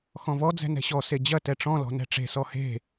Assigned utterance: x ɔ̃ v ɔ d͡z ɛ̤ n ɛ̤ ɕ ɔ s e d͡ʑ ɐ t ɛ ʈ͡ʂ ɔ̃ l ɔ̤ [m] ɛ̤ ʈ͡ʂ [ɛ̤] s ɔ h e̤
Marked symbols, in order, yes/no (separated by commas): no, no